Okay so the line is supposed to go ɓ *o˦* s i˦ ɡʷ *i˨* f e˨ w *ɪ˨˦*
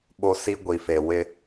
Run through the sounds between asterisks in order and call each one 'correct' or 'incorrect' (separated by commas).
correct, correct, incorrect